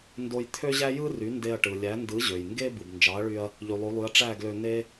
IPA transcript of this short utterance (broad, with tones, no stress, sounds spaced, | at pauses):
n d o˧ j t̪ʰ ø˥ ʑ æ˥ j ɯ˥ r y˩˥ n d e˧ ɐ̯ ʈ ɯ˩ lʲ æ˩˥ n d ɯ˩˥ ʑ ø˩ j ŋ ɡ e˥ b ɯ˩ b n d͡ʒ ɑ˩˥ ɐ̯ ɭ y˧ ɐ̯ | ʎ y˩ lˠ o˩˥ lˠ y˩˥ ɐ̯ ʈ͡ʂ æ˥˩ ɡ l ø˧ n e˥